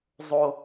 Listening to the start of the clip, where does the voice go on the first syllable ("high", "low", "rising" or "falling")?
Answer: high